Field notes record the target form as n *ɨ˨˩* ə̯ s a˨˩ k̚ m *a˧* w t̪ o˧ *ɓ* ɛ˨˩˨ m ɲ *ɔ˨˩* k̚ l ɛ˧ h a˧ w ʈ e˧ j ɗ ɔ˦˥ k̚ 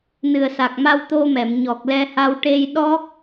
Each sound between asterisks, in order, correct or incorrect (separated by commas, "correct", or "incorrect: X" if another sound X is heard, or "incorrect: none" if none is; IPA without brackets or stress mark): correct, correct, incorrect: m, correct